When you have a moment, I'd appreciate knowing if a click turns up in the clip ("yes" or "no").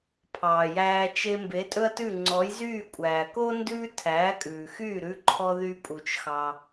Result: yes